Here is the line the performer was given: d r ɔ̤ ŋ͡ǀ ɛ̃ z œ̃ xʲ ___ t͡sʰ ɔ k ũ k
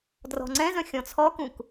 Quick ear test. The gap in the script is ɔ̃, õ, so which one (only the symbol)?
ɔ̃